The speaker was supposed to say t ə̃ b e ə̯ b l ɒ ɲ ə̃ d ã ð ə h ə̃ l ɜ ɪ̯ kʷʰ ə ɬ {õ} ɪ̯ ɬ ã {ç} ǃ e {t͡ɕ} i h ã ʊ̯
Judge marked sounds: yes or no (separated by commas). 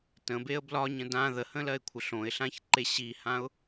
yes, yes, no